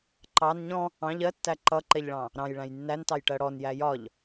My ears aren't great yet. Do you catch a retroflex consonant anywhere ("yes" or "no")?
yes